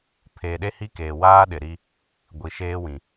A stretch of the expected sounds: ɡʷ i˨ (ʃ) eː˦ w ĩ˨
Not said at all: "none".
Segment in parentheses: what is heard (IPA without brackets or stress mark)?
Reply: ʃ